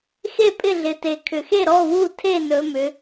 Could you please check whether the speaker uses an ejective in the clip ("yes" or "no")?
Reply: yes